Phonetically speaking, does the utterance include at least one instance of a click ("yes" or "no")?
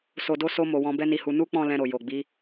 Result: no